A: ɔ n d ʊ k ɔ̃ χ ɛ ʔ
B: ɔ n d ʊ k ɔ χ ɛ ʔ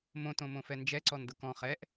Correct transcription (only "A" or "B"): A